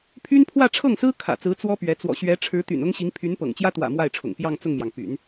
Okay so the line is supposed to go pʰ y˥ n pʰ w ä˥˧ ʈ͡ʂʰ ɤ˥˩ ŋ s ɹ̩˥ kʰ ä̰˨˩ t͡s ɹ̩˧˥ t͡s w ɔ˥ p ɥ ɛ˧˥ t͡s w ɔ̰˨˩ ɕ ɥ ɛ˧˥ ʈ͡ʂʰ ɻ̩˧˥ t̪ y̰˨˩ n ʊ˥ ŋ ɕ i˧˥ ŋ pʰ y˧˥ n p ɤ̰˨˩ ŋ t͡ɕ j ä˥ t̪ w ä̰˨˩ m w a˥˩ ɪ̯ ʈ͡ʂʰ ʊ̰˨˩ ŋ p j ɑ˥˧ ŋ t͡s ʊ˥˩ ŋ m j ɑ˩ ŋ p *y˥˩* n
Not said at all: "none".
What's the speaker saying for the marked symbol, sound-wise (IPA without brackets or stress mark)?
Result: y̰˨˩˦